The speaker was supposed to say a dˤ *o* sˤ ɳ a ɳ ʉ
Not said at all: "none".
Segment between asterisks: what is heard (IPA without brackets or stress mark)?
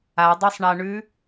o